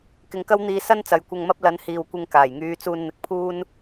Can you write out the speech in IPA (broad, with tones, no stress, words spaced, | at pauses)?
kɪ˨˧ŋkɐ˥w n̪iː˧ sɐ˥n t͡sɐ˨˧jkʷɐ˧ŋmɐ˥p̚ lɐ˨˥nhiː˨wkʷɪ˧ŋ kaː˨˩jŋyː˧ t͡suː˧nn̪ɪ˨˥k̚pʰuː˥n